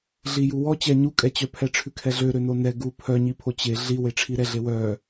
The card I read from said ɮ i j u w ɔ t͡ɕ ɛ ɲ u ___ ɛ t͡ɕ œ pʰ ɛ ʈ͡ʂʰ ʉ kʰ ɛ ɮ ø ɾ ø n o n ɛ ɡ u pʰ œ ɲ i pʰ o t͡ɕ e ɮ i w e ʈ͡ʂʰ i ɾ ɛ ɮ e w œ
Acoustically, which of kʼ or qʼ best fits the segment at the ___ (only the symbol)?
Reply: kʼ